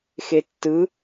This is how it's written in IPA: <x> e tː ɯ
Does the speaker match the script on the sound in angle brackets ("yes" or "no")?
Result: yes